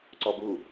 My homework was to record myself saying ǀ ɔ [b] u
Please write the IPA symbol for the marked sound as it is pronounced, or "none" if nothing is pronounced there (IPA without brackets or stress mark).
b